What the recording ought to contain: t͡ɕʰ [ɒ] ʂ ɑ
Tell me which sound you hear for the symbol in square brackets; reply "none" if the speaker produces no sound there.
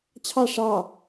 ɑ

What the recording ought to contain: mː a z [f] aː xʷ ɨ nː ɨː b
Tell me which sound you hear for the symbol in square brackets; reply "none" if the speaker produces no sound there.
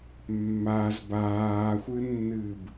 b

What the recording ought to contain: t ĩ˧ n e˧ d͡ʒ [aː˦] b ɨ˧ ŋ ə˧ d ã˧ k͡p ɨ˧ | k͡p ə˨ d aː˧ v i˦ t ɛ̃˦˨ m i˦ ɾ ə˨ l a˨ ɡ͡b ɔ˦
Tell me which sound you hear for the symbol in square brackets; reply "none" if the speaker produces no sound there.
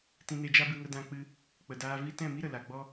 a˦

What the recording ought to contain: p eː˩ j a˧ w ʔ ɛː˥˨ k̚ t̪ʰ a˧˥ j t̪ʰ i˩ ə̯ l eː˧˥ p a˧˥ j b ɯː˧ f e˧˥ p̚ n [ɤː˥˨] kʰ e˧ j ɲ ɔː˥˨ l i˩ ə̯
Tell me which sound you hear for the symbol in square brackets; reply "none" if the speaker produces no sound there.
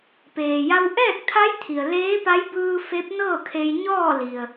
ɤː˥˨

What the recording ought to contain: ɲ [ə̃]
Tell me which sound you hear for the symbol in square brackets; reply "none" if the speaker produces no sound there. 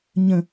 ə̃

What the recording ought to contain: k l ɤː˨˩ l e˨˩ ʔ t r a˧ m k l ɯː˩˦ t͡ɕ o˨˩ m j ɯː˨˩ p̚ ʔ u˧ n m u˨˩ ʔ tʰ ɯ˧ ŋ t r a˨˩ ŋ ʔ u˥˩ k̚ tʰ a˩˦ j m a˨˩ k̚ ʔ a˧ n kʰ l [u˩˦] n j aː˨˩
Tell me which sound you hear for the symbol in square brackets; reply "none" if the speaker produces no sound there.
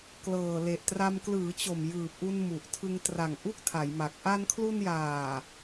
u˧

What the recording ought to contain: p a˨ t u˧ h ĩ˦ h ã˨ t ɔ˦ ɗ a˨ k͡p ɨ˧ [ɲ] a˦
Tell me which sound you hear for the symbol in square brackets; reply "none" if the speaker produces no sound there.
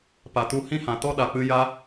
j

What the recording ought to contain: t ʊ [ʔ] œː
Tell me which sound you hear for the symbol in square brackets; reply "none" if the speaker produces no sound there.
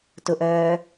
ʔ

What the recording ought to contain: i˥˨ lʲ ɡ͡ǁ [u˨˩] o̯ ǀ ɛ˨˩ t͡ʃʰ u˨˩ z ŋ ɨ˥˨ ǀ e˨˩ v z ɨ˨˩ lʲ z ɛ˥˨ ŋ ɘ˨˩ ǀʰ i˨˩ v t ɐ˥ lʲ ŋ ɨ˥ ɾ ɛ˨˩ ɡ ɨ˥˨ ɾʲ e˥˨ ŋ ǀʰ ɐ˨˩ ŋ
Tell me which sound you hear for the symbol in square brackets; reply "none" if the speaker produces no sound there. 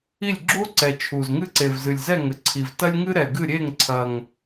u˥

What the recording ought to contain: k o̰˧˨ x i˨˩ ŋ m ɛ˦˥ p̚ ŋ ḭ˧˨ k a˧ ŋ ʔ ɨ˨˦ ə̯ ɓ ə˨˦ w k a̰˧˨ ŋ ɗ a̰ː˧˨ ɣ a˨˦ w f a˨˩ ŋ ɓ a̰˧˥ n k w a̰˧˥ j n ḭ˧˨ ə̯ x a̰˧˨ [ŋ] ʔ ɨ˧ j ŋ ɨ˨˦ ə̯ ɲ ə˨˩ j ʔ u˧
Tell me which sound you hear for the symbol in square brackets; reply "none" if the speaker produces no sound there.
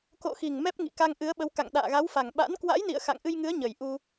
ŋ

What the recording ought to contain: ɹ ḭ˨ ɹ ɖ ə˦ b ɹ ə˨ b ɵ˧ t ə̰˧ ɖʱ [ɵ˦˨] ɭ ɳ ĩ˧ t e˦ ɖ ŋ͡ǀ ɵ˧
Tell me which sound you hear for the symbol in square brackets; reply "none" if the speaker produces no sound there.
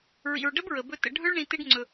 ɵ˦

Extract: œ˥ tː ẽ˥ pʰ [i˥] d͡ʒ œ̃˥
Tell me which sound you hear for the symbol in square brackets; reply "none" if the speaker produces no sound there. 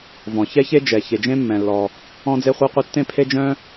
e˥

